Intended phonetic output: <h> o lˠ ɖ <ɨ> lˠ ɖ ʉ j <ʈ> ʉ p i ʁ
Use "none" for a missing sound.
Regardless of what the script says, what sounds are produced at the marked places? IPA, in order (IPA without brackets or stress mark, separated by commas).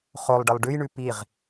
χ, ɨ, ɳ